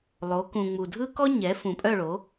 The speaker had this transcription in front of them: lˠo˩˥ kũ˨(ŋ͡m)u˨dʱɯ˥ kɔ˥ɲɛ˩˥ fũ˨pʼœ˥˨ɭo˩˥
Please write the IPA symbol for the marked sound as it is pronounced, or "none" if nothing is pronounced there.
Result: ŋ͡m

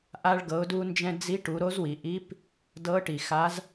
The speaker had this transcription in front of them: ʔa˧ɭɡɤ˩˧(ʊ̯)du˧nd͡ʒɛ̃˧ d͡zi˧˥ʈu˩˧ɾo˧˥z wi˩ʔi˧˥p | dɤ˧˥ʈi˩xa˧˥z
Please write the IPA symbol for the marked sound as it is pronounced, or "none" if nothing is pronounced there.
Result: ʊ̯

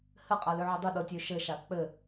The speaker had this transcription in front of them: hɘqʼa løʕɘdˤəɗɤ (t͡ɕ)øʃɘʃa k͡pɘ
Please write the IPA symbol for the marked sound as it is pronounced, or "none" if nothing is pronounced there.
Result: tʲ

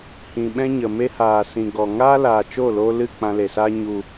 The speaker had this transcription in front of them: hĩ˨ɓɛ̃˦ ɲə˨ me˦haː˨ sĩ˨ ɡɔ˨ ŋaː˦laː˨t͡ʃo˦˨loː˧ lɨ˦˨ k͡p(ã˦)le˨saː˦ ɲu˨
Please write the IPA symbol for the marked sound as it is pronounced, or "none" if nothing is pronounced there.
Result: ã˧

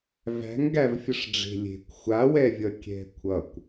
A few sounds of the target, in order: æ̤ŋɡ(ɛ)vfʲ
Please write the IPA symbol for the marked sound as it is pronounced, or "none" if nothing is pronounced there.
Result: æ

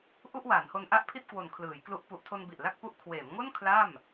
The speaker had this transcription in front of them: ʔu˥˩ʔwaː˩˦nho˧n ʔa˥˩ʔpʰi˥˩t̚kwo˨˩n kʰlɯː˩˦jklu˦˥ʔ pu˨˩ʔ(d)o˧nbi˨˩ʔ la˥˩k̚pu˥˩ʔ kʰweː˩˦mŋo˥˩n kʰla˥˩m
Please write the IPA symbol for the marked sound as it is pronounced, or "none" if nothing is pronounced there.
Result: tʰ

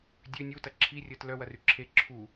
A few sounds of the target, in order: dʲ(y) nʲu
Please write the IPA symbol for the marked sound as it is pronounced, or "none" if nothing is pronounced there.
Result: ø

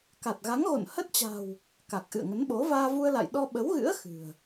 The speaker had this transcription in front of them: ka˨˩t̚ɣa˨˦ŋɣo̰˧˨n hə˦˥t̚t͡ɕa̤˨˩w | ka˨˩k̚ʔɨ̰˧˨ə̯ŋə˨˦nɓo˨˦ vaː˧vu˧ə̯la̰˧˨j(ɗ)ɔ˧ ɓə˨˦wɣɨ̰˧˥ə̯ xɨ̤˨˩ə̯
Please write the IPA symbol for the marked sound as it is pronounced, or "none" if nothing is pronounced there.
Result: ɗ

